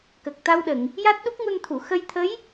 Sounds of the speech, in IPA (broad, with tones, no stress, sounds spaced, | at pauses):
k ə˨˩ k̚ t̪ a˧ w ɗ ə˨˩˨ ŋ | j a˦˥ t̚ ɗ u˦˥ k̚ ŋ u˧ n t̪ʰ u˨˩˨ x ə˧ j t̪ʰ ə˧˥ j